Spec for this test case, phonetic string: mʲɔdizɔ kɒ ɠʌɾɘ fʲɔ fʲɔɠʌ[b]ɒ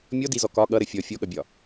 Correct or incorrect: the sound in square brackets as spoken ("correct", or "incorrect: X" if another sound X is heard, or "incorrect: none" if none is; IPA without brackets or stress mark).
incorrect: bʲ